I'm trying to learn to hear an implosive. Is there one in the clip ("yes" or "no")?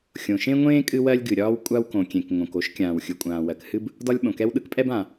yes